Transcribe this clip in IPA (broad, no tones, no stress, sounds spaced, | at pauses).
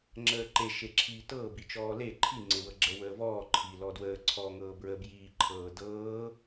ŋ͡ǁ əː ǃ e ʃ e ǁʰ iː t ɤː b i t͡ʃ ɔː l e ǃʰ i ŋ͡ǀ e w ɤ ɡ͡ǁ ə w əː v ɔː ǃʰ i l ɔ d w əː ǀʰ ɔː ŋ ɤː b ɹ ə b j iː ǃʰ ɤː d ɤː